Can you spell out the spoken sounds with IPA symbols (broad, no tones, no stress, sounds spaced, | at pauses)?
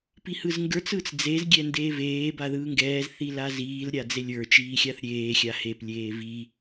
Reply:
p i h ɯ z ŋ ɡ ə˞ t͡s ɯ t͡s d͡z e z ɡʲ ɛ n d eː v eː b a ð ɯː ŋ ɡ ɛː z θ i l a z iː l ɾʲ a d͡z e lʲ ə˞ t͡ʃ iː xʲ a θ ɾʲ eː xʲ a h e p lʲ eː v i